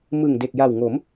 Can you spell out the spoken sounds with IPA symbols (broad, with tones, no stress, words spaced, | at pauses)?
mɯ˨˩ŋde˨˩k̚ja˨˩wŋo˩˦m